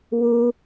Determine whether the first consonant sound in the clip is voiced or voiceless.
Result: voiced